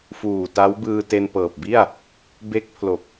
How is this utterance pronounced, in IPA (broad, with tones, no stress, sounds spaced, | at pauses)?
f uː˨˩ t a˦˥ w b ɯː˧ t e˧ n p ɤː˨˩ p̚ b i˥˩ a̯ | b e˦˥ k̚ pʰ l o˨˩ k̚